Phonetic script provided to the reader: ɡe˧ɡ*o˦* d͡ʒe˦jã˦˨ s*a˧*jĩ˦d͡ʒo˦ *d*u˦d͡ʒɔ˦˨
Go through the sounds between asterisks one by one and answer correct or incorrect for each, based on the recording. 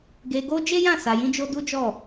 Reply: correct, correct, correct

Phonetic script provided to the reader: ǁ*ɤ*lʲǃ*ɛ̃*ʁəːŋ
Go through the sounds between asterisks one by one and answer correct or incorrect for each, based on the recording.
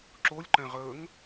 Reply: incorrect, correct

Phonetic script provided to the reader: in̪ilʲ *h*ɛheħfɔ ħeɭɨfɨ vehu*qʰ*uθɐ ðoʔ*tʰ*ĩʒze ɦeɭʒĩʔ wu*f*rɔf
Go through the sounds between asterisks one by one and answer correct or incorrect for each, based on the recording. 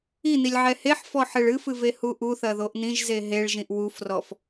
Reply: incorrect, incorrect, incorrect, correct

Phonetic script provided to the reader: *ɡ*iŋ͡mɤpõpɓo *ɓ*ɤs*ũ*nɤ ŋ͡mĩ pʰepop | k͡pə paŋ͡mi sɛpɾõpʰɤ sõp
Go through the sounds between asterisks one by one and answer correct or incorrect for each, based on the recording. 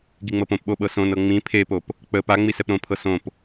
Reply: correct, correct, incorrect

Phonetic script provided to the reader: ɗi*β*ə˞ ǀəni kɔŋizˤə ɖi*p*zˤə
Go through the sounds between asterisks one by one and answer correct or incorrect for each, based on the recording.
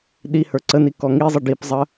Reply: incorrect, correct

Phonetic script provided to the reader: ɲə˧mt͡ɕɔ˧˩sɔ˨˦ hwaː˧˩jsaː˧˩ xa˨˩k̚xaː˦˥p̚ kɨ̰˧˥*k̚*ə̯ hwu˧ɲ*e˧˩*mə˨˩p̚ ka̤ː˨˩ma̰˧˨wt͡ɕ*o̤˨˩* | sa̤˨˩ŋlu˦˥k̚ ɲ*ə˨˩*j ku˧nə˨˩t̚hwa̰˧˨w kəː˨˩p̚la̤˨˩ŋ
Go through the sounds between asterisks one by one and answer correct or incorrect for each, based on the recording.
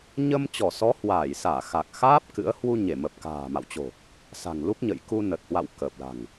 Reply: incorrect, correct, correct, incorrect

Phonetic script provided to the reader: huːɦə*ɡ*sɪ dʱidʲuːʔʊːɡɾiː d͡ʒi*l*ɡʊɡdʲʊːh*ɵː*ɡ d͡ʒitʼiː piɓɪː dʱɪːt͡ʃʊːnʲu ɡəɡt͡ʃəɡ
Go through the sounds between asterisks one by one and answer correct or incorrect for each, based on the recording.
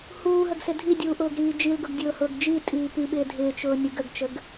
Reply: correct, correct, incorrect

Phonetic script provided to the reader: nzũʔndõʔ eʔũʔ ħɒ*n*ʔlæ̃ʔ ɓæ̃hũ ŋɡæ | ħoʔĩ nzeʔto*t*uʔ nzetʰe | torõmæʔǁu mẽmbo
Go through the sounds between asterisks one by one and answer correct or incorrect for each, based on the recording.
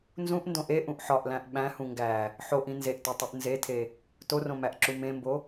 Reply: incorrect, incorrect

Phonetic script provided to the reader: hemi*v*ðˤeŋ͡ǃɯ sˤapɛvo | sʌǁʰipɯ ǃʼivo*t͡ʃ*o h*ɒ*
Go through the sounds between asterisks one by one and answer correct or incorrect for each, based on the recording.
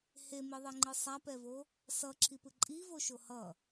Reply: incorrect, incorrect, incorrect

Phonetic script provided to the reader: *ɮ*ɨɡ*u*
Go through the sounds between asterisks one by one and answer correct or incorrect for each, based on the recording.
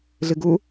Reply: correct, correct

